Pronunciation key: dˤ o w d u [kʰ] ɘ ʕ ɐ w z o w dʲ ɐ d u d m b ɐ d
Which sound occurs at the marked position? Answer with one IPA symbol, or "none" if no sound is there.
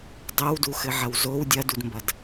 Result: x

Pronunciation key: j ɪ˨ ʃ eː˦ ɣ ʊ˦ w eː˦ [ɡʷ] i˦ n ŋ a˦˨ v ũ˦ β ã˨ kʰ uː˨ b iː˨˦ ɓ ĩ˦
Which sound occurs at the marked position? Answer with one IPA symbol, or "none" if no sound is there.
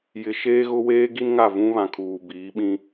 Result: ɡ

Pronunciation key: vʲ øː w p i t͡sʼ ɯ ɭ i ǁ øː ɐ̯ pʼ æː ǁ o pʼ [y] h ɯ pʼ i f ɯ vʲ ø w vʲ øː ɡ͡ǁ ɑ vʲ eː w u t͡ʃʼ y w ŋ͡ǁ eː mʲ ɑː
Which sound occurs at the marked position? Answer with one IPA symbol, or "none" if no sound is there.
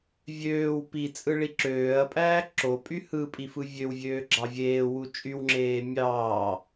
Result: y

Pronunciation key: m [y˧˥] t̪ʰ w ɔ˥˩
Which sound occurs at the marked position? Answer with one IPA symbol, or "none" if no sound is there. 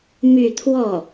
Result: y˥˧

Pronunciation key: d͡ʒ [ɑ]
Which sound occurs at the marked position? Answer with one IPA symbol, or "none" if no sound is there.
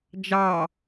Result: ɑ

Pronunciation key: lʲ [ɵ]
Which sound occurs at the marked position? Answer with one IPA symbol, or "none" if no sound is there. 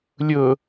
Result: ɵ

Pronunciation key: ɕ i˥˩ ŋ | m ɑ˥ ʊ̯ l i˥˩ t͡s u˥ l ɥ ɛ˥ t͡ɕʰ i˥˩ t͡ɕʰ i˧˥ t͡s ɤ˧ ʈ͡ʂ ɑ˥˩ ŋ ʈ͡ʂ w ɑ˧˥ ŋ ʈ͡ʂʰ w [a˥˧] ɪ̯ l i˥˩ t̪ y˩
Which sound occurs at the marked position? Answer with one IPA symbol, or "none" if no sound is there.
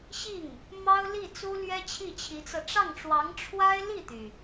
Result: a˥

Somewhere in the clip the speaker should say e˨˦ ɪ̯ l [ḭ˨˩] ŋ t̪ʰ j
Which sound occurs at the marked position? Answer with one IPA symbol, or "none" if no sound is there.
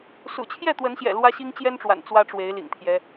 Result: ḭ˨˩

